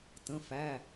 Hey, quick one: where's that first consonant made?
tongue tip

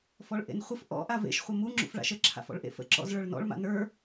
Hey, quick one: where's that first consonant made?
lips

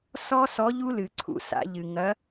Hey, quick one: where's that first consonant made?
tongue tip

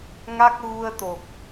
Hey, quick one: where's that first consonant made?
velum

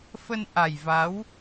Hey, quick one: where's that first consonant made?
lips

